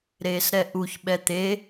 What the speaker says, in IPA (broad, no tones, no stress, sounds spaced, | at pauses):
ɾ eː s ɾ ɛ ʔ u ç ɓ ɛ t̪ e